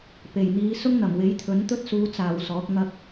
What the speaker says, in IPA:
p e˨˩ j n̪ iː˨˧ s ʊ˥ ŋ n̪ ɐ˨˩ m w e˨˥ j t̪ʰ ɵ˨˥ n t̪ ɵ˥ t̚ s uː˨˧ t͡s aː˨˩ w s ɔː˨˥ k̚ ŋ ɐ˧ k̚

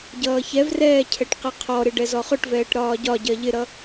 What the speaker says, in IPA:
ɟ ʌː ç ɛ v r ɛː cʰ ɛ ʈ q i qʰ ɔ ɾ ɪ ɖ ɛ z ɔ χ ʊ ʈ v ɛː ʈ ɾ ɒː ɟ ɒ ɟ ɜ ʎ ɪ ɾ ʌ

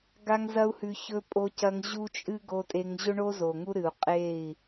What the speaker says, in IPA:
ɡ a˦ ŋ z ɐ˦ u̯ h ʉ˧ ç ɵ˦ pʼ o˧ c ɐ˧ ŋ ʑ u˦ t͡ʃʼ ɨ˦ ɡ o˧ tʼ e˧ ŋ ʑ ɵ˦ ɳ o˦ z o˨ ŋ u˦ ɾ ɨ˨ u̯ qʼ e˦˨ i̯

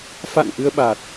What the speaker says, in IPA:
f a̰˧˨ n ʔ ɨ˧ ə̯ ɓ a˨˩ t̚

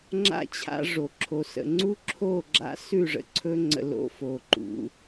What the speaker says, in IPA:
ŋ͡ǁ a̰˦ t͡ɕʰ a̰˦ ʐ o˨ ǁʰ o˨ s ə̰˨ ŋ͡ǀ u˦ ǁʰ o˦˨ ɡ͡ǁ a̰˦ s ʉ˦˨ ʐ ə̰˨ ǀʰ ɵ˦ ŋ͡ǀ ə̰˨ l o̰˦ f o˨ ǃ ṵ˨˦

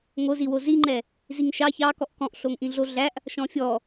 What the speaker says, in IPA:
ŋ o z i w o z i ŋ͡ǃ ɛ | z i ŋ ʃ ɑ ç ɑ k ɔ ʔ k ɔ̃ ʔ ɬ o ŋ ʔ ĩ ɮ o ɮ æ ʔ | ʃ ɔ̃ fʲ ɔ

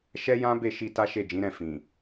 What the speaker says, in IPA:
ʃ ɛ˦ j ã˦ b e˦˨ ʃ i˧ t a˦ ʃ e˦˨ d͡ʒ ĩ˨˦ ɾ ɛ̃˦˨ f ĩ˨

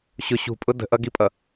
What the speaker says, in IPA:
ɕ ʊ ɕ ṳ pʼ ʊ d ə̤ ʔ ʌ ɡ i pʼ ʌ

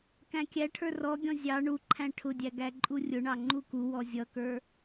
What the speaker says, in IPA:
k æ̃ kʲ æ ʈʰ ə˞ r ɔ ɡʲ ɔ̃ zʲ ɑ ɳ u ǃʰ æ̃ ʈʰ ʊ dʲ æ ɡ æ ǃʼ u rʲ ʊ ɳ ɑ ŋ͡ǃ u k u w ɔ zʲ ʌ k ə˞

